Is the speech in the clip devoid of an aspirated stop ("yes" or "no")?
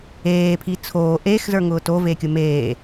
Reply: no